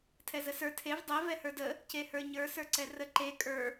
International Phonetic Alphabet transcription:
tʰ ɛ z ə s ə˞ tʰ e v dˤ ɛ v ɛ h ə˞ d ə | c e h ə˞ ɲ ə˞ s ə˞ ǀ ɛ r ə ǃ e kʼ ə˞

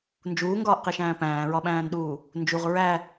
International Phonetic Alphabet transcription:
n d͡ʒ uː ŋ ɡ ɒː ʔ q i ʃ æ̃ː p æ̃ː ɹ ɒ ɓ æ̃ː n ɗ uː | n d͡ʒ u ʁ ɹ æ

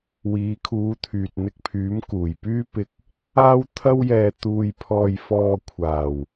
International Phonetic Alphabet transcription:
w iː˨˧ kʰ uː˨˧ t̪ʰ yː˨ t̚ n̪ ɪ˧ k̚ pʰ yː˨˥ m k uː˨˩ j p yː˥ p ɪ˧ k̚ | aː˥ w t̪ʰ ɐ˥ w j ɛː˧ t̪ uː˧ j pʰ ɔː˧ j f ɔː˧ kʷʰ aː˨˩ w

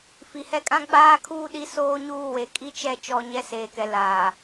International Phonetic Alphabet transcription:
f i˨ h ɛ˦ kʼ ã˦ ɡ͡b aː˦ kʰ uː˦ ɗ i˦ s oː˦ ɲ uː˦˨ w e˨ kʼ i˦ t͡ʃ ɛ˦˨ t͡ʃ ɔ˦ ɲ ɛ˦ s eː˨ k ɛ˨ l aː˨

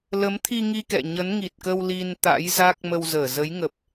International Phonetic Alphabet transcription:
l ə˨˦ m t̪ʰ i˧ ŋ i˧ k ɛ̰˧˨ ɲ ə˨˦ n ŋ i˨˩ t̚ k ə˧ w l i˧ n t̪ a̰˧˥ j z a˦˥ k̚ m ə˧ w z əː˧˩ z ə˨˦ j ŋ ə˨˩ p̚

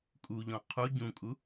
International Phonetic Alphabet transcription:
kʼ u ʎ ɔ̃ qʰ u ɟ ũ kʼ u

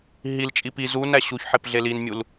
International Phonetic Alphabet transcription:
ɦ i l t͡ʃʼ i p i z u n æ ɕ u ç ħ e p ɮ e l i n mʲ u l

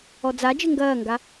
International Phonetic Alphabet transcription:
ɔ d͡z a d͡ʒ ɘ ŋ ɡ ɐː ŋ ɡ a

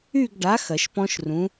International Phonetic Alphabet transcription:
y˥˧ ɡ ɖ a˨˥ x ɐ˨˩˦ ʃ p ɔ̃˦˥ ʃ r ũ˨˥

